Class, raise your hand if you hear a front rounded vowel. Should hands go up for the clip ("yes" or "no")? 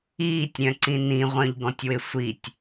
yes